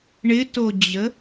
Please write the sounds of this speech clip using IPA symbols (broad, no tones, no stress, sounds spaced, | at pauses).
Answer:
ɳ ɪ t o d͡ʑ ə